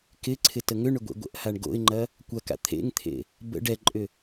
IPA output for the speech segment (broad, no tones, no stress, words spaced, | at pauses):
kɪǀʰɪ təŋʏɳʏ ɡʷḛɡʷə̰ʔhaɳ ɡo̰ɪ̯ŋ͡ǃɐ | kʷɐka̰ t̪ʰḛŋt̪ʰḛ | bə̰ ɖɛǃʼʏ